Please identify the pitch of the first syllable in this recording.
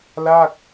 falling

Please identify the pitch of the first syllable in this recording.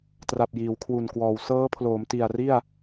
low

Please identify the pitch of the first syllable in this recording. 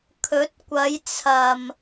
rising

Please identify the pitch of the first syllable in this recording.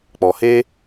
low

